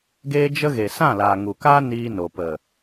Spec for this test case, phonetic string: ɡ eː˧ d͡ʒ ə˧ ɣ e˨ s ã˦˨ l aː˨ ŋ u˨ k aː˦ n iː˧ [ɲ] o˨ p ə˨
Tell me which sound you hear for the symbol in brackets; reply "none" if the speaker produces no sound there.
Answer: n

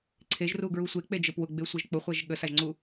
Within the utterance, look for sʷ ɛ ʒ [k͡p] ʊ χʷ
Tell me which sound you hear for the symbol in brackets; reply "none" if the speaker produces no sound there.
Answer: k͡p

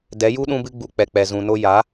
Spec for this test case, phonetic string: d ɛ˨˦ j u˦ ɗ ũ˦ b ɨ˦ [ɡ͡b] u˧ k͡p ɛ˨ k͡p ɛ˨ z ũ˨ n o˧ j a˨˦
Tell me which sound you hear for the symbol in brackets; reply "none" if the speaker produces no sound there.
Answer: ɡ͡b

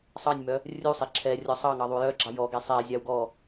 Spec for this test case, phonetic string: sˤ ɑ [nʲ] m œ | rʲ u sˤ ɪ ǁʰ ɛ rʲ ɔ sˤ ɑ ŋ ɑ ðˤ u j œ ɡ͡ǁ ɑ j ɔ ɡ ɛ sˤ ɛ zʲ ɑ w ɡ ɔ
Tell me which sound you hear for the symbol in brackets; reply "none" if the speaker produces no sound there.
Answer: nʲ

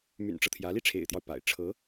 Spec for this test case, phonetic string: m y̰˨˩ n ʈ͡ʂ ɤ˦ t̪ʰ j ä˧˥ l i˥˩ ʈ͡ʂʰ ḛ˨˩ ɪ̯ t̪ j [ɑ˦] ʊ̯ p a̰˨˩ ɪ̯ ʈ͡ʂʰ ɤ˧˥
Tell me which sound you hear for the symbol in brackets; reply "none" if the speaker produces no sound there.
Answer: ɑ˦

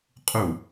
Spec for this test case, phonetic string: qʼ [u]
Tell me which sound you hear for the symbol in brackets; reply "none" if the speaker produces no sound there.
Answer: u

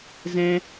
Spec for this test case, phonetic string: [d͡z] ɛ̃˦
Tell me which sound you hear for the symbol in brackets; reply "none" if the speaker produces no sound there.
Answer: z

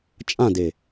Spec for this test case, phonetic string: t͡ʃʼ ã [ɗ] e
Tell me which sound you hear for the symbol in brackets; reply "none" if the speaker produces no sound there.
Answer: d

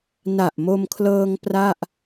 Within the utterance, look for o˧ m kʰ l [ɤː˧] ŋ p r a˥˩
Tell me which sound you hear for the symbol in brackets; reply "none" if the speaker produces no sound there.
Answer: ɤː˧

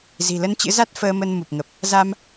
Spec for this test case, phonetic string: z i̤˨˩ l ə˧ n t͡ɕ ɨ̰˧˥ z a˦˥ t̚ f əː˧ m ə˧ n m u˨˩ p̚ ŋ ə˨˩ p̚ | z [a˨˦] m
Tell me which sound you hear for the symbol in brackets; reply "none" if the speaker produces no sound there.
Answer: a˧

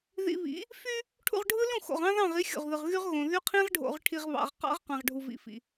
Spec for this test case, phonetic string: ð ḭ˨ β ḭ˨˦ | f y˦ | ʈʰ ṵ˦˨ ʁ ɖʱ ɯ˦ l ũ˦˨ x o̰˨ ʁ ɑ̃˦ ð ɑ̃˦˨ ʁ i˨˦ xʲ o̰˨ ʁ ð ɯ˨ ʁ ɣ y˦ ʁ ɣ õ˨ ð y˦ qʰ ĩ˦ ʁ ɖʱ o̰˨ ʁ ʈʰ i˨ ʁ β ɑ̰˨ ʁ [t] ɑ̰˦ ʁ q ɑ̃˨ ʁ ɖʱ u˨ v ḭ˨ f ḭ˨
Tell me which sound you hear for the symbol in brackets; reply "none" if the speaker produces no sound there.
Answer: q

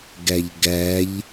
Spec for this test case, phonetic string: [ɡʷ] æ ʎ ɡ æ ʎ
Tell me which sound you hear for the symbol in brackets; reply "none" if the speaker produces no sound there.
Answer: ɡ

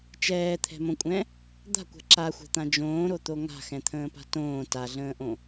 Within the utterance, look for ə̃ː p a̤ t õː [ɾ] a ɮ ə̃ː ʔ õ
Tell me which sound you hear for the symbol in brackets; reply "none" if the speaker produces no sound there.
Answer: t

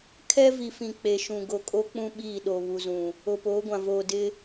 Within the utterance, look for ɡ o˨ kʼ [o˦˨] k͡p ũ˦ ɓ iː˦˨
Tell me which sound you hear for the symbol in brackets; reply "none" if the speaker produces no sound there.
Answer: o˦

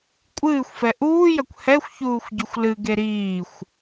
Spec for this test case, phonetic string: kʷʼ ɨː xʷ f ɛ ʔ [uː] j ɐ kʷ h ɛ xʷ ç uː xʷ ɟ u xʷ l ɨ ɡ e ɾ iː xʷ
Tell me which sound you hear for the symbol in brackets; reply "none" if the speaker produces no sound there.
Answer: uː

